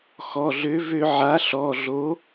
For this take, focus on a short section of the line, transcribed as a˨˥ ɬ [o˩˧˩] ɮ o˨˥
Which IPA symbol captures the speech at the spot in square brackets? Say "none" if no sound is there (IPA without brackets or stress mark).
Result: ɔ˩˧˩